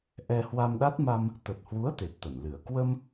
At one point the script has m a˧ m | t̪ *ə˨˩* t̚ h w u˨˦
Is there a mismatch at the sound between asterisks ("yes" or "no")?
no